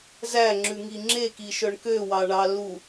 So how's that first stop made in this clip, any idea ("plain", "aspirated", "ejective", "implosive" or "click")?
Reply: click